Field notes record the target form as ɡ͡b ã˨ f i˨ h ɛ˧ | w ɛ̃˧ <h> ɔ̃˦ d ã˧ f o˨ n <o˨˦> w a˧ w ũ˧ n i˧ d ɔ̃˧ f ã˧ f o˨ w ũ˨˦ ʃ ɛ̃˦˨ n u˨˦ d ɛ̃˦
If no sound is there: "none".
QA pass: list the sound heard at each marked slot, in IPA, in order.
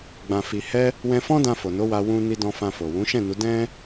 f, o˨˦

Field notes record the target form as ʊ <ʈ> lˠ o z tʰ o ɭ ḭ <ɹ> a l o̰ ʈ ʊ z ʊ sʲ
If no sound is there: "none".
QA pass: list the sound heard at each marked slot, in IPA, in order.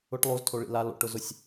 ʈ, l

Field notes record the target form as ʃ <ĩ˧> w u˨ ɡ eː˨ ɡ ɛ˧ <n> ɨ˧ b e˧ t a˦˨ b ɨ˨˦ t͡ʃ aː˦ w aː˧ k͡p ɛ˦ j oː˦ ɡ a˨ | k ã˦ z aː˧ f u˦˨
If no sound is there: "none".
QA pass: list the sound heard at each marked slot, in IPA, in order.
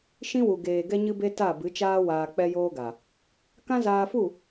ĩ˦, ɲ

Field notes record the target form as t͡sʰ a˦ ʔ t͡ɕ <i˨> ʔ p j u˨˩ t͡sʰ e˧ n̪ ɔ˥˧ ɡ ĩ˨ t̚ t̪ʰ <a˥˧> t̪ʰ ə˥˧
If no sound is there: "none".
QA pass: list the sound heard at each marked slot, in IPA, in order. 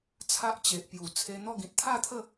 e˨, a˥˧

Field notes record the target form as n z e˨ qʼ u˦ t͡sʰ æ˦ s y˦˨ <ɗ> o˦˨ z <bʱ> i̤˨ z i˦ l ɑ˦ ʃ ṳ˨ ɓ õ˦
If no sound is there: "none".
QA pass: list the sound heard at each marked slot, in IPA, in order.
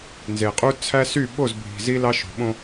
ɓ, bʱ

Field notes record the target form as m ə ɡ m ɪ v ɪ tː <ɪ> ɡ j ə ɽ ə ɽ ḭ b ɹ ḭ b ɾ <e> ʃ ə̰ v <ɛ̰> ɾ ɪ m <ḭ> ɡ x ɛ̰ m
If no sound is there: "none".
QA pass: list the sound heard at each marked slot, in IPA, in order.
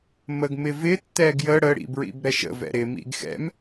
ɛ, ɛ, ɛ̰, ḭ

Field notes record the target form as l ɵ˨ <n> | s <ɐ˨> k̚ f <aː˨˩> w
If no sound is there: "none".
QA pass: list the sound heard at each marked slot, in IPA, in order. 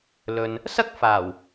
n, ɐ˥, aː˨˩

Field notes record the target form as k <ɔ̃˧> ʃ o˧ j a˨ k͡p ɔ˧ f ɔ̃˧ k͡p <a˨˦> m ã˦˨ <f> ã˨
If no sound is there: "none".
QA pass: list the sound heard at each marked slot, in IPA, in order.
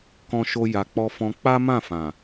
ɔ̃˧, a˦, f

